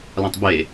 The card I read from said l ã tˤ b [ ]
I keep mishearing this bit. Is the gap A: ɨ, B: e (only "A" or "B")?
B